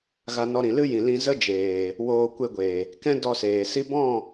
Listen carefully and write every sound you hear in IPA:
ɣ a˧ n ɔ˧ ɾ ĩ˨ l ɨ˦ j ĩ˨ l ĩ˧ z ə˦ d͡ʒ eː˨ | w oː˧ kʷ e˧ ɡʷ eː˨ | k ɛ̃˦ d ɔ˧ s eː˨ s i˦ b ɔ̃˦˨

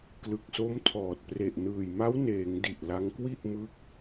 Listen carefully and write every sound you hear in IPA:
k l ɯ˨˩ k̚ s o˦˥ m tʰ ɔː˨˩ t̚ p r e˨˩ ʔ n ɯː˨˩ j m a˦˥ w n eː˩˦ ŋ d i˨˩ ʔ l a˧ ŋ k w i˥˩ ʔ m ɯ˦˥ k̚

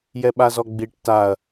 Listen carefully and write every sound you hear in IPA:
j ɛ ɓ a z ɔ ɡ͡b i ʈ t a ɐ̯

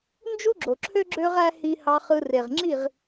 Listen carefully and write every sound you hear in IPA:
n d͡ʒ u˦ ɡ͡ǁ o˨ ǁʰ ø˦ ɡ͡ǁ ø˧ ʁ æ˧ h i˧ h ɑ˧ χ ɯ˧ r e˨ ʁ ŋ͡ǁ i˦˨ ʁ

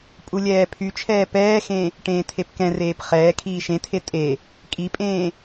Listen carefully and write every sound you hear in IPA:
pʼ u lʲ ɛː pʰ y t͡ʃʰ ɛː p ɛː x ẽ | ʈ ẽː tʰ e p k ɛ̃ r eː p χ ɛː kʰ iː ʃ ẽ tʰ e tʼ e | kʼ i pʼ ẽː

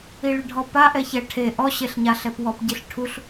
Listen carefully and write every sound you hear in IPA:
i ɭ ɪ ɖʱ ɔ p a ʔ ɛ ç ɛ ʈʰ e ʔ ɔ ɕ e ɬ ɲ a ɬ ɛ p w ɔ p ɟ i ɬ ʈʰ u ɬ

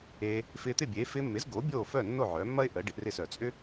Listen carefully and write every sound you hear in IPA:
e˧ | f ɪː˧ t̪ ɪ˥˩ bʲ e˩˥ f ɪː˧ mː ɪ˩˥ z ɡ oː˩˥ bʲ oː˥˩ f œ˥˩ nː o˥˩ ʕ œː˩˥ mː ɐ˥ ɪ̯ ʔ əː˩˥ ɖ ɪ˩˥ ʔ r ɪ˥˩ s œ˩ t͡sʼ ʏ˥

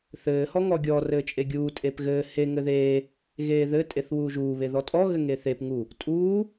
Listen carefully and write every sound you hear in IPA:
θ ɘː h ɔ ŋ ɔ ɡʲ ɔ r ɘː t͡ʃʼ e ɡʲ uː tʼ e p ɣ ɘː h e ŋ ɘ ð eː | ɣ eː ð ɘ tʼ e θ w uː ʒ uː β e ð ɔ tʼ ɔ ɣ ɘ ŋ e θ e p ŋ u | tʼ uː

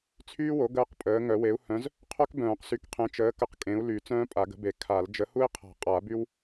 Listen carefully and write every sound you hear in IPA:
t͡sʰ yː˥ w o˨˥ ɡ əː˥ q pʼ əː˨˥ ŋ œ˨˩˦ w e˨˥ u̯ h œ̃˨˥ z | qʰ œ˥ k b œ̃ː˨˩˦ q s y˨˥ k qʰ ẽ˨˥ t͡ʃ əː˨˥ k ə˨˥ q kʼ ẽ˨˥ u̯ l y˨˩˦ t͡s œ̃ː˥ pʼ a˨˩˦ ɡ ə̤˨˥ b e˨˩˦ kʰ a˨˩˦ l d͡ʒ ə˨˥ h u˥ i̯ qʰ a̤˨˩˦ qʼ a˨˩˦ b y˥ w

